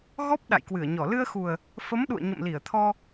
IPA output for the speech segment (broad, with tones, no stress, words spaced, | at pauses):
ɣɔ˦˥p̚ ɗa̰˧˨jkwɨ˧˩ə̯ɲɔ˧˩ lɨ˧ə̯xu˨˩ə̯ | fə˨˦m ɗṵ˧˨ə̯ɲə̰˧˨mli˧˩ə̯t̪ʰɔ˧